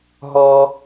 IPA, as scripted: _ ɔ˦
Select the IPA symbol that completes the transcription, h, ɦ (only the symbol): ɦ